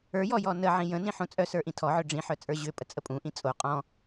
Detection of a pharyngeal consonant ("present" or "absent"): present